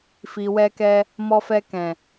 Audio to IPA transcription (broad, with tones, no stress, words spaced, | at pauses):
fi˨wɛ˧kɛ˧ | mɔ˧fɛ˧kɛ̃˨